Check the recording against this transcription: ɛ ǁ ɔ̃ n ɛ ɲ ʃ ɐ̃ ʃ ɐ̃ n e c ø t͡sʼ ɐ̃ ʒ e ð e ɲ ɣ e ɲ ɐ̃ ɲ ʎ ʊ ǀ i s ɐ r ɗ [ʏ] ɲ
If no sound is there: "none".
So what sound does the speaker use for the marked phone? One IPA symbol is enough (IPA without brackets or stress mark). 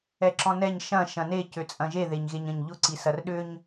ʏ